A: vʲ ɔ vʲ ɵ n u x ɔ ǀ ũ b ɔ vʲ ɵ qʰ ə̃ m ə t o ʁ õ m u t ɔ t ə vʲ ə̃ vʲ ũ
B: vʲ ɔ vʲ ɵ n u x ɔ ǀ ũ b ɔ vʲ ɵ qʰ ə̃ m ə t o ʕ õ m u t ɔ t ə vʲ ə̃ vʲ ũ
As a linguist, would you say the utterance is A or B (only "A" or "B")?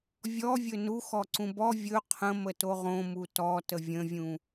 A